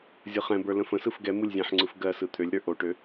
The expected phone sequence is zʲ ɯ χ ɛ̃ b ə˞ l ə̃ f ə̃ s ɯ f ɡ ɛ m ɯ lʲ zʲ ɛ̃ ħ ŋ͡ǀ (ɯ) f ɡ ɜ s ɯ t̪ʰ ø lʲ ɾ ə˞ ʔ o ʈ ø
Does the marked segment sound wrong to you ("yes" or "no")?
no